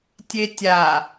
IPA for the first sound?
tʲ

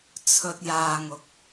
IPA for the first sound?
t͡sʰ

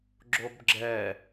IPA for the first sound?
ɡ͡ǁ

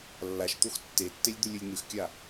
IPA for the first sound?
lː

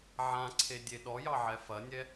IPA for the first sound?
ʕ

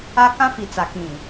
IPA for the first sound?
a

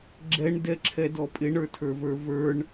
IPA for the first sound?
ɡ͡ǁ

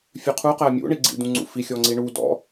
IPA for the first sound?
fʲ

